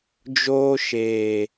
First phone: d͡ʒ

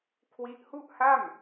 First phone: kʰ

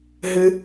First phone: ɦ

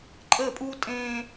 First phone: ǃʼ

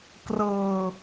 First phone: k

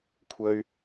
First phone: kʷʰ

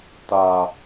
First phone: t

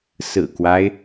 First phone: s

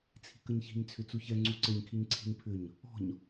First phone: t͡sʰ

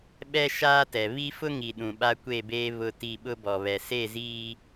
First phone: ɓ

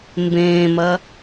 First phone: m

